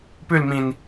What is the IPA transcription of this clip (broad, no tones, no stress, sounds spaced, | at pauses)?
p ʉ l m ĩ n